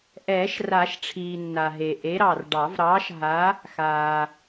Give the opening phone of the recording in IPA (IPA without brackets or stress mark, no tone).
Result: ʔ